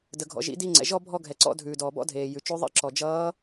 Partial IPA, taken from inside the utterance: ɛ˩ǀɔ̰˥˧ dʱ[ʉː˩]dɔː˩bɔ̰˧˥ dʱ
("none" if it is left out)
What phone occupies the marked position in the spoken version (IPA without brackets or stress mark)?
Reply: ʉː˩